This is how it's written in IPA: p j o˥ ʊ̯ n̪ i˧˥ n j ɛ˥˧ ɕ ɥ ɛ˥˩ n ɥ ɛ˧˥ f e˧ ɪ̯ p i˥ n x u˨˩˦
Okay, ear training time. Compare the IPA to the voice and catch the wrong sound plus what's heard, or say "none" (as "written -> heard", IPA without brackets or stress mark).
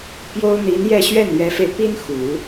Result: none